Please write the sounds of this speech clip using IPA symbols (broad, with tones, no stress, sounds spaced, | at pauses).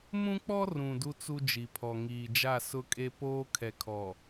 m ũ˦ k͡p ɔ˦ r ũ˨ d u˦ t͡s u˦ d͡ʒ i˨ pʰ ɔ˨ ŋ iː˨ d͡ʒ a˦˨ s ʊ˦ kʼ e˦ p oː˦ kʰ ɛ˨ kʰ ɔ˨